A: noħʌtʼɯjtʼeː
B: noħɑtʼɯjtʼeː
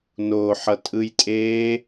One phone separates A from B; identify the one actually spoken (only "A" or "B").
A